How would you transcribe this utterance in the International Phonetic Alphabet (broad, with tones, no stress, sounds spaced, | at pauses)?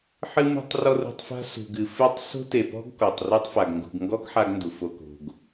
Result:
ħ ɨ˦ m ṳ˦ tˤ r ɔ˦ r ṳ˧ tˤ f a̤˦ s ṳ˨ ɡ ɨ˨ f ɨ˦˨ tˤ s o̤˦ t e˨ p ɔ̤˦ ɡ k ɔ˨ tˤ r u˦ tˤ f a˨ ɡ ŋ ɡ ṳ˨ ɡ ŋ ɡ ɔ˦ ɡ ħ a˦ ɡ n d u˨ f o˧ k o̤˧ ɡ